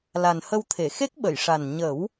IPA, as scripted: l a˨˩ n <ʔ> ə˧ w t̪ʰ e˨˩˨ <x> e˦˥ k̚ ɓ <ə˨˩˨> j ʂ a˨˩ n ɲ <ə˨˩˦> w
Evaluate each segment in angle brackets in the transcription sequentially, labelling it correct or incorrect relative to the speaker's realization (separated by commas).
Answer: incorrect, correct, correct, correct